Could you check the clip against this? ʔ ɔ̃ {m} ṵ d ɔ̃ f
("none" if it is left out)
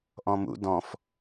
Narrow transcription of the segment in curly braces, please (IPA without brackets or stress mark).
m